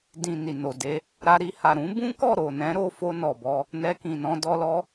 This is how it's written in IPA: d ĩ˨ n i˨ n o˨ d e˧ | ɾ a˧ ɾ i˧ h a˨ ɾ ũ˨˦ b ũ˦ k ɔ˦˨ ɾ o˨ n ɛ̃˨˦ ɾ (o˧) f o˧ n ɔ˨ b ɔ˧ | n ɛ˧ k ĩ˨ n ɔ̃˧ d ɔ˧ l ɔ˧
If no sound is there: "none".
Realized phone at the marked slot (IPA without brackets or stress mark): o˧